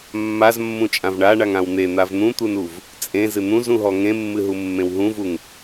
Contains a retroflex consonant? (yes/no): yes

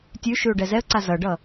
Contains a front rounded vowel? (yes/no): no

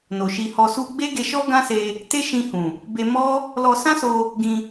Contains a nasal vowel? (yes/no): yes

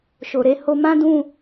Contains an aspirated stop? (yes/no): no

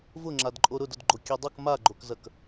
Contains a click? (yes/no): yes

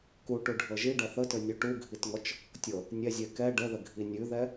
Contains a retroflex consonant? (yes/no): yes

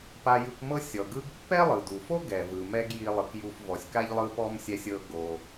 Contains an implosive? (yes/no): no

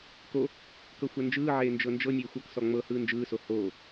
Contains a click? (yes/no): no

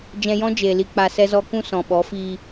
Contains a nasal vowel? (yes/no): yes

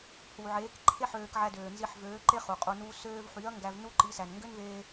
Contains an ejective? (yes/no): yes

